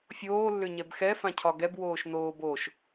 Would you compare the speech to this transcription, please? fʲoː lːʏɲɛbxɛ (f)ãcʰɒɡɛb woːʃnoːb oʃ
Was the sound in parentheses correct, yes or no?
yes